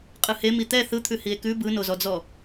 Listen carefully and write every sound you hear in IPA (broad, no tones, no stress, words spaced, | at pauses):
qʼɯhe mit̪ɛ θɯt̪ʰʉ hie̯kʉ bɯnozɔd͡zɔ